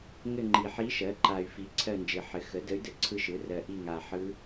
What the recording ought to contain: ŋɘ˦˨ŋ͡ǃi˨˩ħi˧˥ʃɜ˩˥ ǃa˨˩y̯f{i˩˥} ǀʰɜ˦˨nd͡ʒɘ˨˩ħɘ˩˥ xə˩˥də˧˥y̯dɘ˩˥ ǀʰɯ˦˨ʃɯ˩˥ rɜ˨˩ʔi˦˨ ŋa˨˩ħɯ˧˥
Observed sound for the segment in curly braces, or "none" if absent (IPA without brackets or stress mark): i˩˥